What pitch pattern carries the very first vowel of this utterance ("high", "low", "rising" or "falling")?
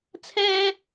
high